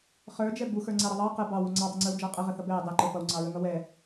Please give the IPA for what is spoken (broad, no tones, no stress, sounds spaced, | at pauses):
χ ə˞ d͡ʒ ɛ b u x ə˞ ŋ͡ǀ æ ɾ ʌ ðˤ ɑ q ə b ɑ w u ŋ͡ǀ ɑ dˤ ʌ ŋ͡ǀ ə˞ w d͡ʒ ɑ qʼ ə ʁ ə θ ʌ b ɛ dˤ ɛ ǃ ə˞ p ʌ w ŋ͡ǀ ɑ ɹ ə ŋ ʌ w ɛ